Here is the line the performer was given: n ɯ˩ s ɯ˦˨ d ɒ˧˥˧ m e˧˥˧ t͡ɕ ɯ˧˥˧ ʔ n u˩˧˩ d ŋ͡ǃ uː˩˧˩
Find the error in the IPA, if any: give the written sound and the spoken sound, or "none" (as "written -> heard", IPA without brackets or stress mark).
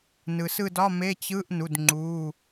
none